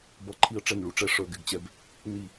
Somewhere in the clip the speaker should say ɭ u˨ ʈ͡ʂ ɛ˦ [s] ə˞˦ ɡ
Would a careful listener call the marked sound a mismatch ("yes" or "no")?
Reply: yes